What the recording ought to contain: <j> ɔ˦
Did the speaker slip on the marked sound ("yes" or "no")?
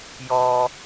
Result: no